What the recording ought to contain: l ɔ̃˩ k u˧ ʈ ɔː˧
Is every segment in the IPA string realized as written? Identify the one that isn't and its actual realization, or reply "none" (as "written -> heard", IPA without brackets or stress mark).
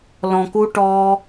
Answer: none